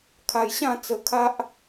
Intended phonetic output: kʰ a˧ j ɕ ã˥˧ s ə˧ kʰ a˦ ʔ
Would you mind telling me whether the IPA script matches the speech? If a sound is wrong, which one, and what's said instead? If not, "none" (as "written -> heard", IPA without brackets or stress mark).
s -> t͡s